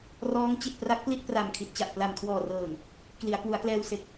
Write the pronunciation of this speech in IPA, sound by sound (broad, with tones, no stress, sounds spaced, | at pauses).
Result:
r ɔː˦˥ ŋ t͡ɕ i˨˩ t̚ p r a˦˥ k̚ p l i˥˩ t̚ p r a˨˩ m kʰ i˨˩ t̚ t͡ɕ a˨˩ ʔ p l a˨˩ m kʰ w ɔː˨˩ r ɤː˨˩ ŋ | k l i˩˦ a̯ k w u˩˦ a̯ k l ɛː˧ w s e˨˩ k̚